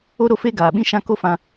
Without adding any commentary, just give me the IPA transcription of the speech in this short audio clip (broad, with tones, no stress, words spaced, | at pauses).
o˧ɾo˧fe˧ ɡaː˨ɓĩ˦ʃã˦ ko˦fã˧